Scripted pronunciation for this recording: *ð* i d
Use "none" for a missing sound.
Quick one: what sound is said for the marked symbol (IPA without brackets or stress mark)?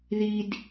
ð